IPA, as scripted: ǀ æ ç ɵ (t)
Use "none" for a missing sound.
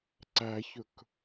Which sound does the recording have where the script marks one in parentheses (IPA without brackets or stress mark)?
k